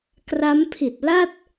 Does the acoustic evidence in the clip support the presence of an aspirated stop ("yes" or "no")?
yes